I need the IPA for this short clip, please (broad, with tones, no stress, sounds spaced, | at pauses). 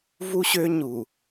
v u˦ ɕ ø˦ ɲ u˨